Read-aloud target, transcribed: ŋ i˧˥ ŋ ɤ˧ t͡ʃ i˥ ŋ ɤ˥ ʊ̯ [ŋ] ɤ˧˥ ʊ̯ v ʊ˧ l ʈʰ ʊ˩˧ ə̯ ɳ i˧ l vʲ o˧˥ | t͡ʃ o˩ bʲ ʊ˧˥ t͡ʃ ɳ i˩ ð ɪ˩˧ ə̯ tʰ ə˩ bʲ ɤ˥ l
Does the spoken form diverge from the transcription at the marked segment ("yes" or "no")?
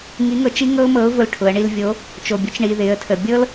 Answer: yes